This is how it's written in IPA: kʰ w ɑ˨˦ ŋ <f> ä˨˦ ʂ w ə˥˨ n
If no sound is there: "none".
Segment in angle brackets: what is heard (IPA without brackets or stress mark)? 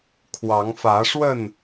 f